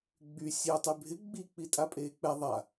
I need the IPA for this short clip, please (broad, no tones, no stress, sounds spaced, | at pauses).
ɡ͡b y sʲ e tˤ y bʱ ɪ ɡ͡b i k͡p i tʼ a pʼ eː k͡p ɛ ðˤ a